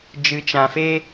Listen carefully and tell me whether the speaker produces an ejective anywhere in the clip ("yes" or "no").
no